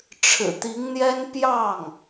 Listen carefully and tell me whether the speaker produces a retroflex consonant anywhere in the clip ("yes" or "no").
yes